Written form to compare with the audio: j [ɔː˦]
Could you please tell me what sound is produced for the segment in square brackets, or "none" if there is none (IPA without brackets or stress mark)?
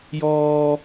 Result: ɔː˦